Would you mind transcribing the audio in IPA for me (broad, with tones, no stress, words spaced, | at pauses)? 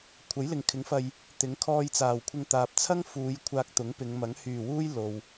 kʷʰɐ˨˥jlɪ˨ŋkʰɪ˨˥ŋfɐ˧j | t̪ɪ˨˥ŋkʰɔː˧jt͡saː˨˩wkʷʰɪ˧ŋ t̪aː˨p̚t͡sʰɐ˥ŋ fuː˨˧j kʷʰaː˧k̚t̪ʊ˨˥ŋpɪ˨˧ŋmɐ˨˥ŋ hyː˨˩wuː˥j lo˨w